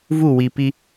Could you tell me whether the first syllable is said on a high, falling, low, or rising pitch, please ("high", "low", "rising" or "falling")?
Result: falling